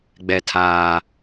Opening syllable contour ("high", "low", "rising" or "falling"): low